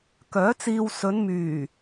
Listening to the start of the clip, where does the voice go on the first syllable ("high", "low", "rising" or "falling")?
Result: rising